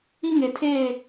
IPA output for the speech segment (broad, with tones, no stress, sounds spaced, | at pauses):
i˦ ŋ e˨ tʰ eː˦˨